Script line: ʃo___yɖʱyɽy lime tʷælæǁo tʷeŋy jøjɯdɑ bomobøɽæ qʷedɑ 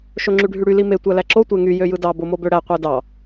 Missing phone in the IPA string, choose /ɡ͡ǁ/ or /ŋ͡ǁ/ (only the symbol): ŋ͡ǁ